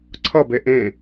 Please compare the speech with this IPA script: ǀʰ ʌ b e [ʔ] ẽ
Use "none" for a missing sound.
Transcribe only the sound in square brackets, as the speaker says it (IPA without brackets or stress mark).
ʔ